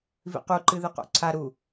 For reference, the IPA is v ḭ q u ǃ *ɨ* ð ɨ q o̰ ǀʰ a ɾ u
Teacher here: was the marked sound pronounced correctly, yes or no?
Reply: yes